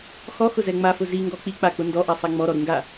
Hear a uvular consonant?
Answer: no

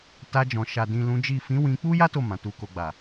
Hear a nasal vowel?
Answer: yes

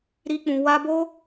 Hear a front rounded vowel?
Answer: no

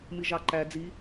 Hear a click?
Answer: yes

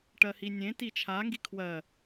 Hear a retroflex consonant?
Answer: yes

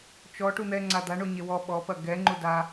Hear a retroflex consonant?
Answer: yes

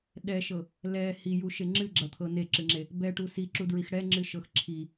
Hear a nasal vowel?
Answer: no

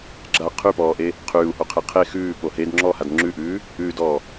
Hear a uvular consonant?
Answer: yes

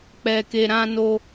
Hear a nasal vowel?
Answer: yes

